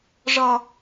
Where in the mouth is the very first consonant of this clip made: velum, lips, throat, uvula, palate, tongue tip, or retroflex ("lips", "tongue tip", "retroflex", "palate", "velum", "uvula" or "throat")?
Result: retroflex